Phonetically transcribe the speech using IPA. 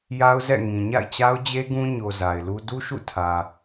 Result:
ja˦ʊ̯zɛ̰˦˨ ŋĩ˨ɲa̰˦˨ɪ̯t͡ɕa˦ʊ̯d͡ʑe˦ ɡũ˦ɲo˨ za˨ɪ̯lu˦ du˦ʃṵ˦˨ tʰä˨

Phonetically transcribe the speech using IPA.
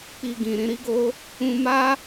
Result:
k͡pi˧ɡĩ˨ ɾĩ˧ɾi˦ɡo˦ | ũ˧ma˦

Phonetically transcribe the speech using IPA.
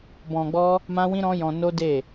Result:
bɔ̃˧ɡ͡bɔ˦ | mã˦wĩ˦ɾɔ̃˦jɔ̃˧ no˦ de˦˨

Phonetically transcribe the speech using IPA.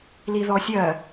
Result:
liðɔsʲɜ

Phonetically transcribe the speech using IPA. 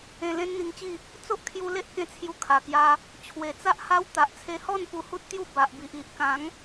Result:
ẽ˧lẽ˦nn̪i˧ŋt͡ɕi˥˧ | t͡so˦ʔkʰju˧le˦ʔkẽ˧ t͡sʰju˧kʰa˨˩kja˧ | t͡ɕʰwe˨˩t͡sa˦ʔha˦w t̪a˨ʔt͡sʰe˧hɔ˥˧n pu˧hu˦t̚t̪ju˥˧ ba˨ʔbi˨ʔ i˨ʔ kã˨˦ŋ

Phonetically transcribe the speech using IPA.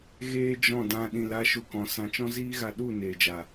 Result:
ɣeː˦d͡ʒɔ̃˦˨dã˧ ɗĩ˨la˧ ʃu˧kɔ̃˨˦sã˧ t͡ʃɔ̃˦ziː˦ ɣa˧ɗu˦˨neː˨d͡ʒa˨

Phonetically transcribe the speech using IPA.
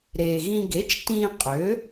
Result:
ɾeː˩ɣĩ˧ ɡe˩˥t͡ʃ tĩː˧ qʼøː˩˥

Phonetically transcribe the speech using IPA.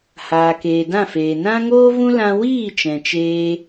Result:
haː˨keː˨dã˦˨feː˨ nã˦ŋoː˦vũ˦lã˧ wiː˦˨ t͡ʃɛ̃˨t͡ʃeː˧

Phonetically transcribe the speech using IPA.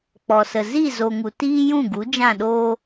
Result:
k͡pɔ˨sə˨ zi˦˨ zo˨ŋu˨ tiː˦jũ˦˨ɡu˨˦ d͡ʒã˦˨ɗoː˦

